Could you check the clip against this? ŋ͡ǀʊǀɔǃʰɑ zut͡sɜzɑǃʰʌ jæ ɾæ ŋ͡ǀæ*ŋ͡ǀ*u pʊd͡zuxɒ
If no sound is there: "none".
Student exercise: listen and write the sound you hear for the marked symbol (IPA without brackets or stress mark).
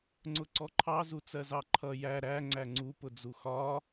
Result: ŋ͡ǀ